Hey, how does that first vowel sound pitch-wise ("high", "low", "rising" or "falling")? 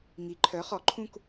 rising